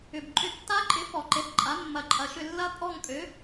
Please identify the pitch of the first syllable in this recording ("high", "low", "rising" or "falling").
low